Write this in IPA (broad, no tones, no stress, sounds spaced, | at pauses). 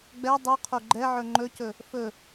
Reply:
ɡ͡b ɛ dˤ u qʰ o ɡ͡ǃ ɛ ʕ ɵ ŋ͡ǃ ɵ c ɵ | f ɵ